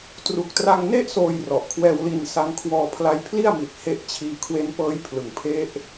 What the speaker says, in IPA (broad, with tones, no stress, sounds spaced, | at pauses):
t r u˨˩ k̚ t r a˧ ŋ n e˥˩ ʔ s oː˧ j r ɔ˨˩ ʔ kʰ w ɛː˧ w l i˧ n s a˦˥ ŋ kʰ w ɔː˧ pʰ l a˧ j pʰ l i˥˩ a̯ m i˨˩ t̚ h e˦˥ ʔ t͡ɕʰ iː˧ kʰ w e˦˥ n p ɤː˦˥ j pʰ l ɯ˨˩ ŋ pʰ e˦˥ ʔ